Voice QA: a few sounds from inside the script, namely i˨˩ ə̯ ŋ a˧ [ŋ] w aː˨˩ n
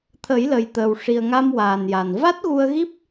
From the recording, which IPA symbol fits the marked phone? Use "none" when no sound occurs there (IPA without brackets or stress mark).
m